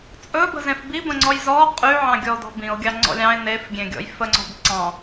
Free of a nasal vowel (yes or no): no